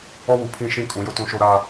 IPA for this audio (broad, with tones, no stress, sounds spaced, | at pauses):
ɔ˦ w u˨ pʰ ĩ˦˨ ʃ ĩ˦ kʼ ũ˨˦ j ʊ˦ t ũ˦ ʃ o˦ ɾ a˦